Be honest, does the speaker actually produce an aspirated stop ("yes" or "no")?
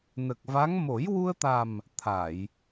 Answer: yes